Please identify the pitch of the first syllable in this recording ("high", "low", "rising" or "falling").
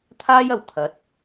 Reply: high